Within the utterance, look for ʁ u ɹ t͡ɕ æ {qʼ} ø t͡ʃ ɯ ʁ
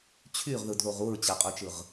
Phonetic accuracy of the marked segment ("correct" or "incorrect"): correct